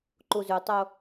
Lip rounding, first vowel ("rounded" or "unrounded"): rounded